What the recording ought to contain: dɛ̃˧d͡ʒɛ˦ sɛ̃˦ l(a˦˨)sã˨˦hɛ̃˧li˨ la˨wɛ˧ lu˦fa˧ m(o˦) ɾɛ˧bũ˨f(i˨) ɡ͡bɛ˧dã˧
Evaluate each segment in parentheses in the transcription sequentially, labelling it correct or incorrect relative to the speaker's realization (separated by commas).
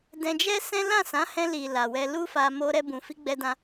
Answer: incorrect, incorrect, incorrect